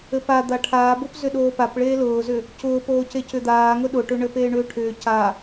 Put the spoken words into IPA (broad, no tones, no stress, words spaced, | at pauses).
ɘpa d̪aʈʰaːbopzʏ ɗoːpapɭeː lʊːzʏ | cʊːpoː cecʏd̪aːŋʊ ɗʊʈʏɳɘ peːɳʏːʈʰʏː ca